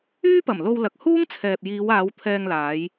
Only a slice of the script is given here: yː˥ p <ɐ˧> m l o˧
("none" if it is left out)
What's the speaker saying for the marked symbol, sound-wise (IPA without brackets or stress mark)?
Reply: ɐ˨˩